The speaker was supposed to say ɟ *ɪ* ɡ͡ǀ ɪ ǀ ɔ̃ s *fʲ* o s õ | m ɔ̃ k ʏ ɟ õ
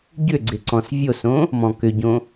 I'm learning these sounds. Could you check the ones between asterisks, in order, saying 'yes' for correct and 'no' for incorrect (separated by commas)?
no, no